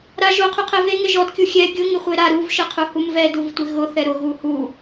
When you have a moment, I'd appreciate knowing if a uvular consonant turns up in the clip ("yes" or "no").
yes